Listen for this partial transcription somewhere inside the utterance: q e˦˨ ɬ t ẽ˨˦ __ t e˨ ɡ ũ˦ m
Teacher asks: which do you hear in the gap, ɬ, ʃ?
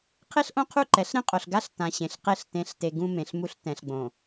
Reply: ɬ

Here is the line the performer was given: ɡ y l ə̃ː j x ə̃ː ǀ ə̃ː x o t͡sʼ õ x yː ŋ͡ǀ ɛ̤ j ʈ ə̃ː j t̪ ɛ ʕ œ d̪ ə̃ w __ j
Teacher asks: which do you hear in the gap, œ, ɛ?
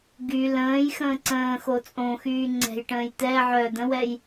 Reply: ɛ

